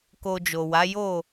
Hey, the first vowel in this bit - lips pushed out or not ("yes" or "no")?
yes